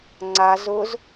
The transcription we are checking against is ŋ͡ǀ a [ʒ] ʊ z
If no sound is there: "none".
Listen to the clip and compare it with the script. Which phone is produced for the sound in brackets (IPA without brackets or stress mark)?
z